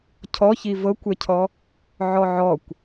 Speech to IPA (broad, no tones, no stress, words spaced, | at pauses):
cʰɔçi vɤkʷɛcʰɔ | ʕɔʕɔkʷ